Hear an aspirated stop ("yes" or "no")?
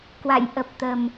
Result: no